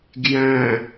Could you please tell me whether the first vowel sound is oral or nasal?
nasal